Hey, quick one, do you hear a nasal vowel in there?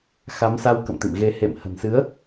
no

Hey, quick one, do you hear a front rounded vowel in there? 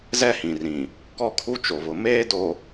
no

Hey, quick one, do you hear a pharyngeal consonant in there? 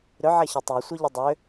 yes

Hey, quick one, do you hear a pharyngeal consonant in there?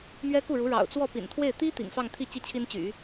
no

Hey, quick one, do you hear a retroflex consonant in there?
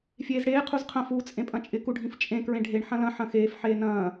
yes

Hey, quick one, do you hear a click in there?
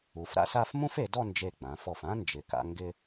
no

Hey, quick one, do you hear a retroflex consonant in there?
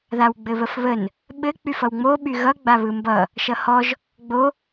no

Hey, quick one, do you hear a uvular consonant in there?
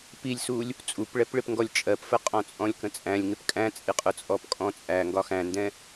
yes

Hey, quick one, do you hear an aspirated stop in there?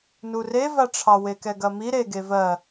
yes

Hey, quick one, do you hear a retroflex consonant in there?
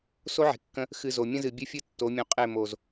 no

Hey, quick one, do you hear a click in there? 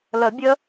no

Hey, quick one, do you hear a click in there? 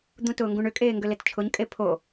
no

